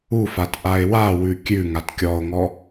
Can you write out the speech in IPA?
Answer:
u f a t ʔ a e̯ w a w ʉ kʲ ʉ ŋ a t kʲ ɔ o̯ ŋ ɔ

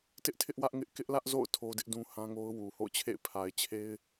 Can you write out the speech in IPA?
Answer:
t ɪ˦ ʔ tʰ ɪ˦ ʔ w ä˦ ʔ ŋ ɪ˦ ʔ k ɪ˦ ʔ l ä˦ ʔ z o̰˦˨ ʊ̯ tʰ o˦ d ɪ˦ ʔ d ũ˦ h ã˦ ŋ o˦ ʊ̯ w u˨ h o̰˦˨ ʊ̯ t͡ɕʰ ḛ˦˨ ɪ̯ pʰ a˨ ɪ̯ t͡ɕʰ e˦ ɪ̯

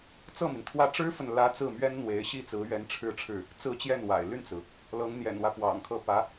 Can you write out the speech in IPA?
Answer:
t͡s ɤ˥˩ m i˩ n t̪ʰ w ä˥˩ ʈ͡ʂ ɻ̩˥ f ə˨ n l ä˧˥ t͡s ɹ̩˥˩ m ɥ ɛ˥ n n̪ w e˧˥ ɪ̯ ɕ i˥˩ t͡s ɹ̩˧˥ ɥ ɛ˧˥ n ʈ͡ʂʰ ɻ̩˥˧ ʈ͡ʂʰ ɻ̩˥˩ | t͡s ɹ̩˥˧ t͡ɕ j ɛ˥˩ n w a̰˨˩ ɪ̯ l y˥˩ n t͡s ɹ̩˩ | l ɤ˧˥ ŋ n̪ j ɛ̰˨˩ n w ä˦ p w ɑ̰˨˩ ŋ kʰ ɤ˥˩ p ä˧˥

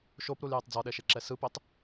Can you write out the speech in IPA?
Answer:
ʃ o p ɾ u l j ɛ tˤ d͡z ɔ ɗ ɛ ʃ e ǁ ɛ s ɯ p e tˤ

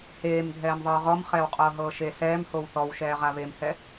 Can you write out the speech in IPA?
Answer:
h eː m dʱ ɛː m ðˤ ɯː ʁ ɔ m χ ɛː w qʼ ɤː ɦ ɤː ʃ e s ɛː m h o w θ ɔ w ʃ ɛː ʁ a β e m h ɛ

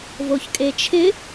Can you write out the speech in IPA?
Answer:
v o ç kʼ e t͡ʃʰ ɪ

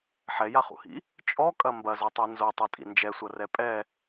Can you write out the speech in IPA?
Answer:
ħ ɛ j a χ ṵ h ḭ | t͡ʃʼ ɔ kʼ ɐ m b ɐ z o tˤ i n z o tˤ o tʼ ḭ n d͡ʒ ɛ sʷ ɐ r ɛ pʼ ɛ

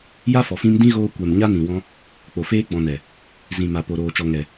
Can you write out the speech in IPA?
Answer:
j a˦ f ɔ˨ f ĩ˧ m d ĩ˦ ɣ oː˧ kʷ ɛ˨ m ɲ a˦ n ĩ˨ w ɔ̃˧ | k͡p o˨ f eː˧ ɡ͡b ɔ̃˨ n ɛ˨ | z ĩ˨ m a˨ p o˨ ɾ oː˨ t͡ʃ ɔ˨ ŋ ɛ˨

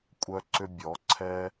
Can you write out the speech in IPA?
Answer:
kʷʼ œ˦ ǀ ʏ˦ bʲ ɔ˨˦ ǀʰ ɛ˦

